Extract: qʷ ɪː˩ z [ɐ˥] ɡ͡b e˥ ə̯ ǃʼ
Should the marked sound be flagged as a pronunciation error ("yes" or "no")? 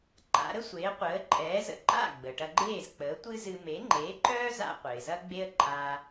no